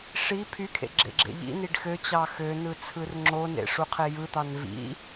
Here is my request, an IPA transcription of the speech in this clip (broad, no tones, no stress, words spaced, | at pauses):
ʂi pʰykʰḛ ɡ͡ǁḛɡ͡ǁḛʎḭniɖ xøt͡ɕɑ xønɯ t͡sʰɯrŋ͡ǁonḛ ʂuqʰejɯt̪ɑn vḭ